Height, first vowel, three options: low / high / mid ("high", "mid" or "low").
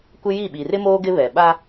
high